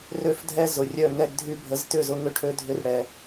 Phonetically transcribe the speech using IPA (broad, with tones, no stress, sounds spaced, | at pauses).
r ø˦˨ f dʱ ɛ˦ z ʊ˨ rʲ œ˦˨ ŋ ɛ˧ ɡ dʱ y˧ bʱ ə˨˦ z t ʏ˦˨ z ʊ˧ ŋ ʏ˦ ʈʰ ø˦ dʱ ʏ˦ r ɽ ɛ˧